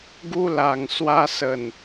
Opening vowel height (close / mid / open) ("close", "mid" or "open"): close